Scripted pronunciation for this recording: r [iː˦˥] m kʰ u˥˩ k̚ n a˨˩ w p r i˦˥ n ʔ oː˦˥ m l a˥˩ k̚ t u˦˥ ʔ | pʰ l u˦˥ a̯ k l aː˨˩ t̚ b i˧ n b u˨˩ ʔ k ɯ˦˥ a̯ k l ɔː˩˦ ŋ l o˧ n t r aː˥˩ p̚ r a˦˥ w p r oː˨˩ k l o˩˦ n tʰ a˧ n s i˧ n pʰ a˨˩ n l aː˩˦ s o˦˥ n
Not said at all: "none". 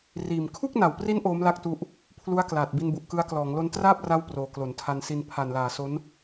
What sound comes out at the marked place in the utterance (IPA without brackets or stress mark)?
iː˨˩